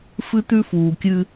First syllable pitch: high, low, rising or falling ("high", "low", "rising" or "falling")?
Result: high